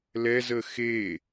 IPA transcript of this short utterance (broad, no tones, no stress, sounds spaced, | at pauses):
l ɛ z ə x e